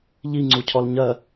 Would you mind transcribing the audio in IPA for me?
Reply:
ʎ i ŋ͡ǀ u cʰ ɔ l ɲ ɜ

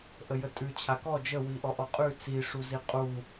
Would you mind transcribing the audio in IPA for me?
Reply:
ʔ ə j ə tʼ ʉ t͡ɕʰ a k ɔ d͡ʒ ə w i ʔ ɔ ʔ ɔ qʼ ʉ t͡s i ʂ u z i qʼ u

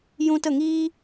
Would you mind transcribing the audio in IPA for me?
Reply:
j ũ˧ t ə˦˨ ŋ iː˦

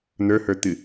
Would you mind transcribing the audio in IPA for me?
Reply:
n̪ ə˞ h ə˞ t̪ ɨ

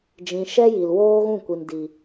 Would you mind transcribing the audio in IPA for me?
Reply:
d͡ʒ ĩ˨ ʃ ɛ˧ j i˨ l w oː˦ ɣ ũ˦˨ kʷ i˨ n d i˨

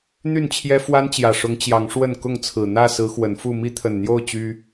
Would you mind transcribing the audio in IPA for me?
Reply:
n̪ y˥˨ n t͡ɕʰ j ɛ˦ f w a˦ n t͡ɕ j ä˨˩ ʂ ʊ˨˦ ŋ t͡ɕ j ɑ˨˦ ŋ ʂ w ə˥˨ n k ʊ˥˨ ŋ t͡sʰ ɹ̩˨˩ n̪ ä˥˨ s ɹ̩˨˦ x w ə˨˦ n f u˥˨ m i˦ t̪ʰ ə˨˩ n n̪ j o˥˨ ʊ̯ t͡ɕ y˦

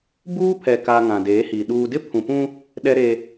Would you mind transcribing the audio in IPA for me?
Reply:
b uː˦ pʰ ɛ˨ k a˨ ŋ ã˨ d eː˨˦ h i˨ ɗ uː˨ d ɪ˦ pʰ ũ˨ p ũ˦ | ɗ ɛ˦ ɾ e˦

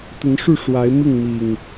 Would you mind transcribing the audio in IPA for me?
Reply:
t̪ ə˨˦ n ʂ u˥˨ ʂ w a˨˦ ɪ̯ m i˥˨ ŋ m i˨˩ ŋ

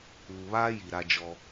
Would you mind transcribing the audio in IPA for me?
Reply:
uː˨ β aː˦ j i˨ ɾ a˦ d͡ʒ ɔ˦

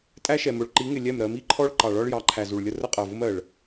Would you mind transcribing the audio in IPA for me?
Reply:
tʼ æ˦ ʃ ɛ˨ m ʊ˨ ɭ ǃ i˨˦ ŋ ɪ˨ lʲ ɛ˦˨ m ɾ ɜ˨˦ m i˦ ǃʰ ɔ˦ ɭ ǃ ɑ˨ ɭ ɒ˦ ɭ j ɑ˨˦ ǃʰ æ˨ z u˨ ɭ lʲ ə˦ r ə˦ qʼ ɜ˨ v ʊ˦ m ɜ˨ ɭ

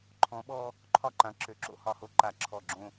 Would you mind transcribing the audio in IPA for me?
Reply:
ǃʰ ɔ̃˨˦ ɓ ɔ˦ | ǃʰ ɒ˥˩ ǃ ã˨˦ ǁ ø˨˦ ǁ o̰˦ h ɒ˧˩ h o˦ ǃ a˧˩˧ ǁʰ ɔ˧˩ ɡ͡ǁ õ˦

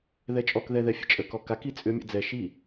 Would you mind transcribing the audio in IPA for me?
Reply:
ð ɛ t͡ʃʼ ɔ k ð ɛ ð ɛ fʲ ə̰ t͡ʃʼ ə k ɔ k a k i t͡sʼ ʏ mʲ ə̰ d͡z ɛ ʃ i

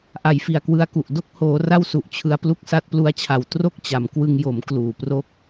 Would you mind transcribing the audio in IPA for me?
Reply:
ʔ a˨˩ j f i˨˩ a̯ k w ɯ˧ a̯ k u˨˩ ʔ d o˥˩ k̚ h oː˩˦ r a˥˩ w s u˨˩ ʔ t͡ɕʰ ɯ˧ a̯ p l u˥˩ k̚ s a˦˥ t̚ p l u˦˥ a̯ t͡ɕʰ a˨˩ w t r o˥˩ k̚ t͡ɕ a˩˦ m k w ɯ˧ ŋ j o˩˦ m k l uː˨˩ p r o˥˩ k̚

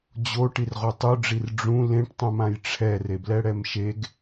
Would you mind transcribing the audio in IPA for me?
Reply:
d͡ʑ o ʈ i r ʁ o tˤ u ɖ͡ʐ i r ɖ͡ʐ ũ l ẽ ʈ tˤ ũ m ã j ʈ͡ʂʰ ɛ r e b l ɛ ɽ ɛ m ʃ e ɡ

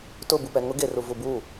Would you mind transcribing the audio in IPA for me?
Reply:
t ʊ b u p ɛ ŋ ʊ ɡ e r u v u b u

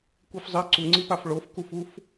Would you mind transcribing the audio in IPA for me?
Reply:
kʷ i f zˤ i ǀ u ŋ͡ǀ i p a f ɭ o f k u f u f

